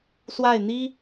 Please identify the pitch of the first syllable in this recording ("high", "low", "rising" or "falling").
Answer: falling